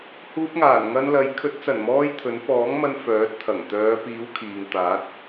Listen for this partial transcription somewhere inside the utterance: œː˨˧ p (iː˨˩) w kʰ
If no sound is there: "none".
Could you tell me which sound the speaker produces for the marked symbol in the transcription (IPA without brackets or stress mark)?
iː˨˥